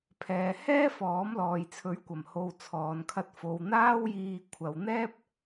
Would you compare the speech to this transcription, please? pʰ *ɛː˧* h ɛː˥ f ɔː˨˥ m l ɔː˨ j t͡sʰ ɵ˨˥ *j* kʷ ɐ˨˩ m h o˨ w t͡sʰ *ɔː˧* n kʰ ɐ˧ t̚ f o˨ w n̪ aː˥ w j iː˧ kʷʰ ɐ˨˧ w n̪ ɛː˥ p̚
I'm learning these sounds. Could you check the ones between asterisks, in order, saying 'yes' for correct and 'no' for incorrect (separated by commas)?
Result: no, no, no